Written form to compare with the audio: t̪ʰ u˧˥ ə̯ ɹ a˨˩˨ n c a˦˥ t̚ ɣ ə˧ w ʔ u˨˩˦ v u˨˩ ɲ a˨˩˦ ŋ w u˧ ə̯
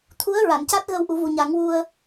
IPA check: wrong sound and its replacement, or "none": none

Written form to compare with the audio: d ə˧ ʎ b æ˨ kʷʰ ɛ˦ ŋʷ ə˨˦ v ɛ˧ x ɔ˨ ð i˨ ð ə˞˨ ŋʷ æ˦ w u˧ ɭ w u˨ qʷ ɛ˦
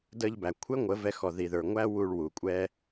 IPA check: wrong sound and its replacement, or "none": qʷ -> kʷʼ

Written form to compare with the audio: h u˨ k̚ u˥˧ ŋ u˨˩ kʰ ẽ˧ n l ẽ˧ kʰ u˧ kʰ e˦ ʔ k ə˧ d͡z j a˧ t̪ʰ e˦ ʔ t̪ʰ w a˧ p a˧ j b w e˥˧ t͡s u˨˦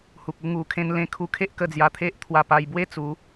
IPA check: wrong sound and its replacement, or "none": none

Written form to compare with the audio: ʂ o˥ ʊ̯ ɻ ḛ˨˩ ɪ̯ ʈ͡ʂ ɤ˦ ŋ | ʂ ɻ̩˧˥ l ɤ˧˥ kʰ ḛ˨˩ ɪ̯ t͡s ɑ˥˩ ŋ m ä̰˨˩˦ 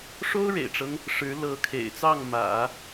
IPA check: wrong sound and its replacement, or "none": none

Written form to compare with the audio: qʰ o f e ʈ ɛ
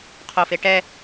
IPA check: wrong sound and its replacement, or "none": none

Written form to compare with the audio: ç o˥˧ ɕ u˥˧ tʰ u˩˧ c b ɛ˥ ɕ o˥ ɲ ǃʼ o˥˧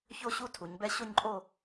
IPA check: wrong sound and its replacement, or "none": c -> ɲ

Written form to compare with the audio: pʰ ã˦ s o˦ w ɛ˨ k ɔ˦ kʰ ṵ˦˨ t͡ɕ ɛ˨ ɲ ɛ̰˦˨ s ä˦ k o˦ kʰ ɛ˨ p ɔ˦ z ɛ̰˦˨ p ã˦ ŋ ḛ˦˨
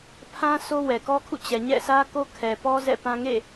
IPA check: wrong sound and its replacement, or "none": none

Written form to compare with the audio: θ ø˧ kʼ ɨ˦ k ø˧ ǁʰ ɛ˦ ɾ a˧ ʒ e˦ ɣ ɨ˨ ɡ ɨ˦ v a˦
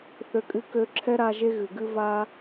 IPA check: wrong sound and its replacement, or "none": none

